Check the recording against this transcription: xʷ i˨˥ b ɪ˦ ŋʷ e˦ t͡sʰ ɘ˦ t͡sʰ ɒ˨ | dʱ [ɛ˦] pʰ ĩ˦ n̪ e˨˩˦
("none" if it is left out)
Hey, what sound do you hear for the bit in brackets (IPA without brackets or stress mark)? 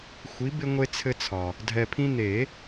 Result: ɛ˨